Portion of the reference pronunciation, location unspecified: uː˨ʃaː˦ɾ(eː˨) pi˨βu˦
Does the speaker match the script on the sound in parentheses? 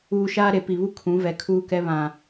no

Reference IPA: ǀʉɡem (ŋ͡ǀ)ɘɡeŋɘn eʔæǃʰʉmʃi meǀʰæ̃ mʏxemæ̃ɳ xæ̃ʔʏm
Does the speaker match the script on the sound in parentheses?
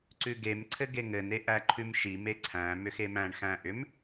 no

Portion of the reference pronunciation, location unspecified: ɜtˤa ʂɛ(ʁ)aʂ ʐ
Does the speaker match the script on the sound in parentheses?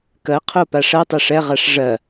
yes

